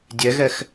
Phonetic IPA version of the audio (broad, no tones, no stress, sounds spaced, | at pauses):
dʲ ɛ ɣ ɛ x